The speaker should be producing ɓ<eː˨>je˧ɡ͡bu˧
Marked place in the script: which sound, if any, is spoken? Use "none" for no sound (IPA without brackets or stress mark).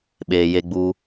eː˨